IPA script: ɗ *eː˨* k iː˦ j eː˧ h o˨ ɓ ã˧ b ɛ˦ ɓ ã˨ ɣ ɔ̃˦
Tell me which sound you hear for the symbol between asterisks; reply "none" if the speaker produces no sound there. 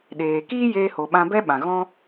eː˨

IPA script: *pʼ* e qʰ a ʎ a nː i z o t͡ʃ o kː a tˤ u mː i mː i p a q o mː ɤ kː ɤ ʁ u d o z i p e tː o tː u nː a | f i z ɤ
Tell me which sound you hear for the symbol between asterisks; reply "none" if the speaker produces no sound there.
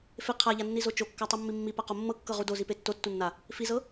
f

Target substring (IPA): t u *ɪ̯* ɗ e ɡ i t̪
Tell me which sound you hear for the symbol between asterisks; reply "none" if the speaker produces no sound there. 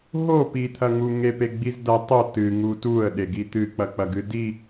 ə̯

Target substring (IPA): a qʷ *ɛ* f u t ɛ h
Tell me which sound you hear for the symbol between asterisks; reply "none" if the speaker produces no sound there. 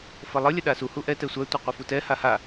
æ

